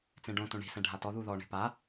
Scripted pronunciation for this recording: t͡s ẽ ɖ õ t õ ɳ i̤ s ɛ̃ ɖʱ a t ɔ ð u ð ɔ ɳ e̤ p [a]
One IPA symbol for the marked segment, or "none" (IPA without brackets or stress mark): a